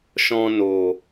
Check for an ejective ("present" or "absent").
absent